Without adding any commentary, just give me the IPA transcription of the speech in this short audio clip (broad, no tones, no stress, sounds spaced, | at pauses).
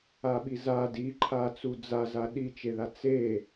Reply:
a ɓ i z a d i ǃʰ a t͡s u d͡z a z a ɗ i t͡ʃ e ð a t͡s e